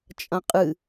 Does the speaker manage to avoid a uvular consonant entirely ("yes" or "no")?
no